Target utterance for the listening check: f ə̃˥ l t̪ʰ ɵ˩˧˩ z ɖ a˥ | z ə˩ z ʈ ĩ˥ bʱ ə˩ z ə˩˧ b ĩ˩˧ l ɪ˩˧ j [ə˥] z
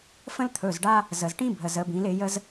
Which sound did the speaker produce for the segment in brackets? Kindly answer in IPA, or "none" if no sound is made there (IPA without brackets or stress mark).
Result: ə˥